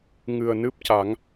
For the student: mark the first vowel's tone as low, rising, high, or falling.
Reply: low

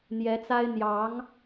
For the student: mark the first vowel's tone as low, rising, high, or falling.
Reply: rising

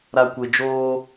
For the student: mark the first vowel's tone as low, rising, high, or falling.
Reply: low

